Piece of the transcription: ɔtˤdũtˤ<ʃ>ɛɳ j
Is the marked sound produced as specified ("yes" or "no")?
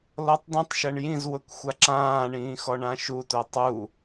yes